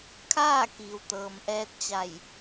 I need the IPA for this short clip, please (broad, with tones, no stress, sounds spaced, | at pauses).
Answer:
kʰ aː˥˨ k iː˩ w t̪ ɤː˩ m ʔ ɛː˧ t̚ t͡ɕ a˧˩ j